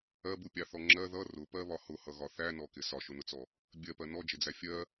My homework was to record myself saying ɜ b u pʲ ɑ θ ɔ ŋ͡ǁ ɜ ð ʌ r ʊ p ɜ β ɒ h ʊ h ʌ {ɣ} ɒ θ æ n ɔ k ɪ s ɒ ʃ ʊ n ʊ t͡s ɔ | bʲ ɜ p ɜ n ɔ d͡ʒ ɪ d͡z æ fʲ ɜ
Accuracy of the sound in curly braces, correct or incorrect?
correct